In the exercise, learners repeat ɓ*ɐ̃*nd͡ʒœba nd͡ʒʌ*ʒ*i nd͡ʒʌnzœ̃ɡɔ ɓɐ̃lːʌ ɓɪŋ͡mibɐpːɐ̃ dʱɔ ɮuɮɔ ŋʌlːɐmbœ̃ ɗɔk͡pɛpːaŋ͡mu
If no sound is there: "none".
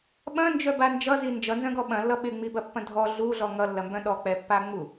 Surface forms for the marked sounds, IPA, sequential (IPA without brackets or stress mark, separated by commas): ɐ̃, z